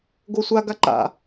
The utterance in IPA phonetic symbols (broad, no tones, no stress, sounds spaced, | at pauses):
ɡ o sʷ a ɡ a ǃ a̰